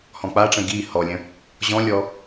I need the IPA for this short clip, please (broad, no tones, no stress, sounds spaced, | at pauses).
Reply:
h ɔ̃ k͡p a ʈ͡ʂ ə̃ ɡ i h ɔ lʲ ə̃ | ʑ ɔ̃ lʲ ɔ